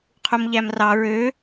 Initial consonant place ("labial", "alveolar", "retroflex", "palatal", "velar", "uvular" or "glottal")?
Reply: uvular